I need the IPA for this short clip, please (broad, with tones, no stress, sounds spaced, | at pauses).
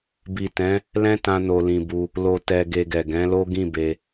b i˨ t ɛ̃˨˦ | l ɛ̃˦ t ã˧ n o˨ l ĩ˨ b u˧ | l o˨ t ɛ˨ ɡ e˧ ɡ ɛ˨ ɡ ɛ̃˨˦ l o˦ ɡ ĩ˦˨ b e˧